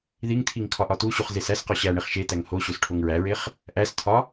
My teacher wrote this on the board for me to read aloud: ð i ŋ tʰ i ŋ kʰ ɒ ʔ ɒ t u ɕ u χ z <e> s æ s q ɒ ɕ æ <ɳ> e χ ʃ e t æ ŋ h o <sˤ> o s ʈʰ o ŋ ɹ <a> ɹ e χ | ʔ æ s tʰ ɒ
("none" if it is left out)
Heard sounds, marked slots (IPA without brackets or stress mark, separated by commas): e, ɳ, ɕ, æ